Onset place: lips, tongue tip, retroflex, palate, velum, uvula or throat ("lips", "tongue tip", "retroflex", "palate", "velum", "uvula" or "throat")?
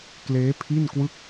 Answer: velum